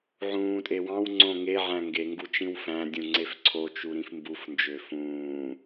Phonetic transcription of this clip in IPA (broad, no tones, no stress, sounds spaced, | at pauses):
ʕ ũː tʼ e w ɑ̃ w ŋ͡ǀ õ ŋ e ʕ æ̃ ŋ ɡ e ŋ ɡ u t͡ʃ ĩ w f æ̃ dʲ ũ ŋ͡ǀ e f ǀʰ o t͡ʃ u ɾ ĩ f m b u f n d͡ʒ ø f ũː